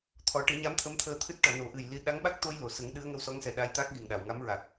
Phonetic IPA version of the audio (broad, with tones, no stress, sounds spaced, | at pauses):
t̪ʰ ɔ˨˩˦ ʈ ɨ˨˩˦ ɲ a˧˥ m t̪ʰ ə˧˥ m t̪ʰ əː˧ t̪ʰ ɨ˦˥ t̚ ʈ ɔ˨˩˨ n o˨˩˦ ʔ ɨ˨˩ j l i˧ ɗ a˧˥ ŋ ɓ a˦˥ k̚ t̪ o˧ j l o˨˩˨ s ə˨˩˦ ŋ ɗ ɨ˧˥ ə̯ ŋ ə˧˥ w s ɔ˧˥ ŋ s ɛ˨˩ ɗ a˧ j t̪ a˦˥ k̚ ɣ i˨˩ ŋ ɗ a˨˩˨ w ŋ a˧˥ m ɹ a˨˩ k̚